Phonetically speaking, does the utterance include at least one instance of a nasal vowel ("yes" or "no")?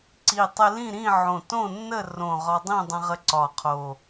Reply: yes